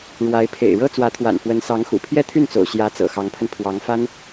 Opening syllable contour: rising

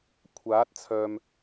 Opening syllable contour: rising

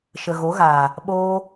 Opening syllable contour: low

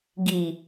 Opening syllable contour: low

